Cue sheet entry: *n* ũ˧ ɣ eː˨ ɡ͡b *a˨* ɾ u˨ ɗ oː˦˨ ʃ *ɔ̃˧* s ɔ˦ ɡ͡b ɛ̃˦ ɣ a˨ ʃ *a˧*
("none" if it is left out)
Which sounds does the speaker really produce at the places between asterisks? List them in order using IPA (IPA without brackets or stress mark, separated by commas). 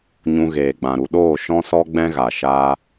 ɲ, ã˨, ɔ̃˦, a˧